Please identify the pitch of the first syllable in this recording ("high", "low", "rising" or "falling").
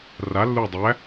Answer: rising